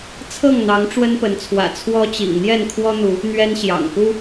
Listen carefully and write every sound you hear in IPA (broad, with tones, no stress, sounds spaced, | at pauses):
t͡sʰ ɤ˥˨ ŋ n̪ ɑ˨˦ ŋ ʈ͡ʂ w ə˦ n p ə˨˦ n t͡sʰ w ä̰˨˩ t͡sʰ w ɔ˦ t͡ɕ ḭ˨˩ ŋ n̪ j ɛ˥˨ n kʰ w ɔ˦ n̪ u˨˦ | n̪ ɥ ɛ˦ n ɕ j ɑ̰˨˩ ŋ p u˦